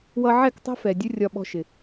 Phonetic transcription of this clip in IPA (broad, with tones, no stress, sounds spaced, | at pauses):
w ʌ˦ ʕ ɛ˦˨ k tˤ æ̤˦ f ɛ˨ dʲ ʊ˦ rʲ ɒ˦ ɓ ɔ̤˦ ʃ ɪ˨